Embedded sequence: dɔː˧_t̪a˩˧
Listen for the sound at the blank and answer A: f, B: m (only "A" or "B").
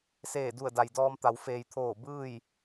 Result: B